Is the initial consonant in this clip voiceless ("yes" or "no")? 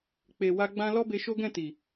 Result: yes